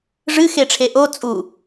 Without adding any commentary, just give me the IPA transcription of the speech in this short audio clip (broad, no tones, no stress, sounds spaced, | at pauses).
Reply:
ʐ ɨ x e ʈ͡ʂʰ e ʔ o t͡sʼ u